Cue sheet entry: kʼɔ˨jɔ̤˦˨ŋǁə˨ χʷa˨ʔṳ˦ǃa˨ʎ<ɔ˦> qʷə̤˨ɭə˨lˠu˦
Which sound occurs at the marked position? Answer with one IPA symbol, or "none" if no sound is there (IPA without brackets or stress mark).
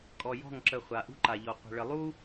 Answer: ɔ˨